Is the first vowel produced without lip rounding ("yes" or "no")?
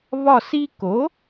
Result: no